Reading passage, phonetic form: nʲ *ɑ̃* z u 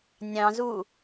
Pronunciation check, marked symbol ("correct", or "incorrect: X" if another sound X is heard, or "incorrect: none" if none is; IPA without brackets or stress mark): correct